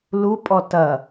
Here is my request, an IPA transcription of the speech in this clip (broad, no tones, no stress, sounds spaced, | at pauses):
l u pʼ ɔ t ɐ